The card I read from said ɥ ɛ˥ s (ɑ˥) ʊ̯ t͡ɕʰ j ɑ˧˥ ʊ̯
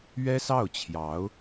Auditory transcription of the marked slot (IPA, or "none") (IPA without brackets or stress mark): ɑ˥˩